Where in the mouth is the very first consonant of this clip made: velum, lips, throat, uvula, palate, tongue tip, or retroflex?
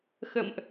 velum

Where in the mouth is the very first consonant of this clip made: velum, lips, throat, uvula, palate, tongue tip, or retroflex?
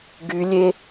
velum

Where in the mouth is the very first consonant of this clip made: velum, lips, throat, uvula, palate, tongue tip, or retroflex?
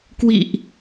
velum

